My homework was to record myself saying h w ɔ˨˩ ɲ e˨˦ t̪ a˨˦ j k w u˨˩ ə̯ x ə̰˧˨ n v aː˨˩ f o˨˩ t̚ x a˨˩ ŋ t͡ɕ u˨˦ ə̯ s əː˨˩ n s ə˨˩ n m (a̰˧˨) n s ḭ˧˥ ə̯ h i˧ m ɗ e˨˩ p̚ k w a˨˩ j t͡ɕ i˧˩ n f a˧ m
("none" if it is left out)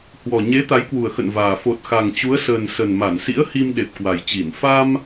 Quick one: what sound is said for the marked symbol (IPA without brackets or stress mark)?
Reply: a˧˩